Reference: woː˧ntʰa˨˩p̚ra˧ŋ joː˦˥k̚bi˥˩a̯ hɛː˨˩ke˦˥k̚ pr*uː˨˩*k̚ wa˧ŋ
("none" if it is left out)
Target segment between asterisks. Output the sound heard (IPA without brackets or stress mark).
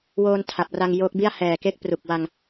u˨˩